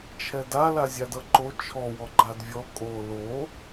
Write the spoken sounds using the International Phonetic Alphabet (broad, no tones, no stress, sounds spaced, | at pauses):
t͡ʃʰ ɛ d a l a zʲ a d ʌ ǃ o t͡ʃʰ ɔ w ɔ ɡ͡ǃ a d vʲ ɔ kʼ o l o